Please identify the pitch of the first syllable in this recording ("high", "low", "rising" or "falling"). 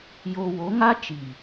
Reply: low